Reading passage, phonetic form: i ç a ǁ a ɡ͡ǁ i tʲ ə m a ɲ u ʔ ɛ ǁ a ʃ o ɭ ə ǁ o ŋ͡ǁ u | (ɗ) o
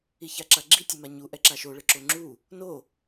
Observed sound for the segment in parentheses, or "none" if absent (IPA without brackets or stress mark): n